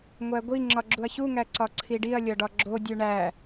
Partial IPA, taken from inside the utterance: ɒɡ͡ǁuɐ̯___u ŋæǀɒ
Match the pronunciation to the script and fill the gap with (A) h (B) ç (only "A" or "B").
B